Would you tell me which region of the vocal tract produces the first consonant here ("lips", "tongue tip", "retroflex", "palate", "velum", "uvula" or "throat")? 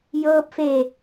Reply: palate